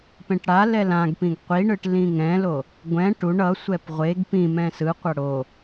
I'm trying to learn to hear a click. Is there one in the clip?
no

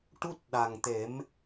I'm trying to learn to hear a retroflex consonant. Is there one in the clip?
yes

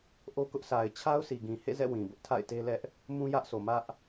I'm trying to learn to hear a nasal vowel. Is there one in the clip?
yes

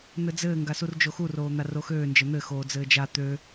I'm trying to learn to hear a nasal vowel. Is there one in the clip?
no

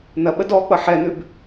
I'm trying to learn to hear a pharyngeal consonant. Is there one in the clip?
yes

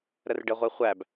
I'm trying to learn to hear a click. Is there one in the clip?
no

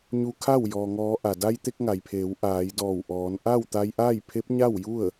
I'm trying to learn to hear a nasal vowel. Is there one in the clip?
no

